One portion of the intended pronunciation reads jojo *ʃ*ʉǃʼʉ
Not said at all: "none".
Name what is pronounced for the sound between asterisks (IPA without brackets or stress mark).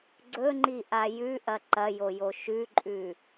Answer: ʃ